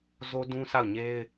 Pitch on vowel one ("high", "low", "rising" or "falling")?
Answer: high